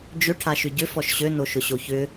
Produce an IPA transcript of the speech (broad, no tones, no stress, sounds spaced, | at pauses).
d͡ʒ ʏ ʈʰ a ʃ ʏ ɟ ʏ f ɔ ʃ ɕ ø n o ʃ ʊ ɕ o ç ʏ